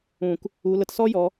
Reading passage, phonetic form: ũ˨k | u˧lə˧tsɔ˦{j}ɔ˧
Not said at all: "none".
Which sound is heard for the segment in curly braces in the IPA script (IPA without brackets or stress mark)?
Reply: j